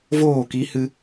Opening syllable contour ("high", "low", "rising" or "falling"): falling